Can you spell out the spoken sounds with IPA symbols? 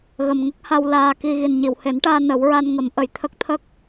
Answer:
ɣ ə˨˩ m ŋ ə˦˥ k̚ h a˧ w l aː˨˩ k i˨˩ ɣ i˨˩ n ɲ i˨˩˨ w h e˨˩˦ n ʈ aː˧ n ə˨˩˦ w ɹ a˧ n ŋ ə˨˩˦ m ʔ ə˨˩˨ j t̪ʰ ə˦˥ k̚ t̪ʰ ə˦˥ k̚

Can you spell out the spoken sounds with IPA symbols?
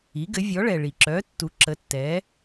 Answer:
i˩˥ ɡ ɘ˩˥ vʲ ɔ˩˥ ɭ ɛ˩ ɭ i˩ ǁ œ˩˥ tː u˩˥ ǁ ə˩˥ tː ɛ˩˥

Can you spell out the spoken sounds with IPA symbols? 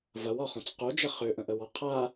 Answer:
v ɐ w ɒ χ õ t͡s q o d͡ʒ ə χ ø ʔ ə̃ ʔ ə w ɔ qʰ a

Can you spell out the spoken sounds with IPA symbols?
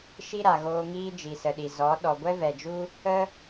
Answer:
ʃ i˦ ɾ a˨ ɣ oː˧ ŋ iː˦ d͡ʒ i˨ s ə˨ ɗ i˨ z ɔ˨˦ ɗ ɔ˨ ɡʷ ɛ˦ v ɛ˨ d͡ʒ u˦ | ə˦

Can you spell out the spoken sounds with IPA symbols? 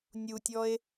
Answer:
nʲ u tʲ ɔ e̯

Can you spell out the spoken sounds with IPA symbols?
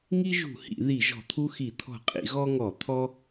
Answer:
ŋ i˦ ʒ ṳ˧˩˧ h ḭ˧˩˧ ð i˧˩˧ ʒ ɔ̤˧˩˧ t̪ʰ u˦ x i˧˩˧ t̪ʰ ɔ̤˧˩˧ qʼ ḭ˧˩˧ ɣ ɔ˦ ŋ ɔ˧˩˧ t̪ʰ ɔ˦

